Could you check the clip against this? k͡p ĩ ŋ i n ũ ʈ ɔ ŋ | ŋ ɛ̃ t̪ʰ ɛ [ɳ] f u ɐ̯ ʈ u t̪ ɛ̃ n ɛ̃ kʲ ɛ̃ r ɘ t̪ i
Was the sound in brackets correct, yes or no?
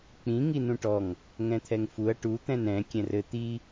no